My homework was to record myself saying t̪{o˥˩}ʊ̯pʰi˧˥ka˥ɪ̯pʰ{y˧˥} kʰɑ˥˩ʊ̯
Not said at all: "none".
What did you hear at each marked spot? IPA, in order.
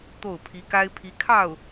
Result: o˥˩, i˧˥

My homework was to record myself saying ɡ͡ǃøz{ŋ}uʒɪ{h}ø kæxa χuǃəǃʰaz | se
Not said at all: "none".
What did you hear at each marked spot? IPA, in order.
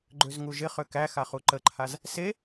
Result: ŋ, χ

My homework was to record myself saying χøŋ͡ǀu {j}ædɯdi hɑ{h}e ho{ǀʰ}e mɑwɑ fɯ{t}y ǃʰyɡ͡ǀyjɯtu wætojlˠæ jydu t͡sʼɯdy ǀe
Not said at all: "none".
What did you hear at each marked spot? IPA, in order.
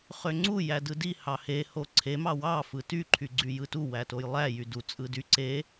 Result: j, h, ǀʰ, t

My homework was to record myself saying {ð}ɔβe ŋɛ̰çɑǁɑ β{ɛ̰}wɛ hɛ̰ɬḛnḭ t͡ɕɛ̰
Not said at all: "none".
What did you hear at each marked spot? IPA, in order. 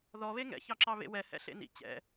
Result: ð, ḛ

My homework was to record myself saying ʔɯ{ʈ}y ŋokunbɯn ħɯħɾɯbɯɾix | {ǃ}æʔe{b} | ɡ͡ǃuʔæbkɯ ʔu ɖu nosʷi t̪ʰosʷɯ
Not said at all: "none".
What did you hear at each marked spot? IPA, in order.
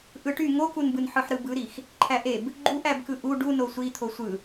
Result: ʈ, ǃʰ, b

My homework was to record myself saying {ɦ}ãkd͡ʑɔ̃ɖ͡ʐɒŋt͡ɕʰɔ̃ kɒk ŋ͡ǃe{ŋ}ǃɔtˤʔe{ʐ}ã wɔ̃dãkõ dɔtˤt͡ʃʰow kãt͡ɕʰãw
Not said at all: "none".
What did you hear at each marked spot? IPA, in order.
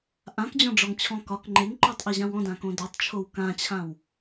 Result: ʔ, ŋ, ʑ

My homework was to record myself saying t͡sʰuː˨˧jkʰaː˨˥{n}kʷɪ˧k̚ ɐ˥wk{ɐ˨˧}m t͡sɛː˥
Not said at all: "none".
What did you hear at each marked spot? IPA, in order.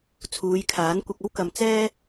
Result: n, ɐ˨

